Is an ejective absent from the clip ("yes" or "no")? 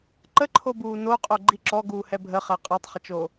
no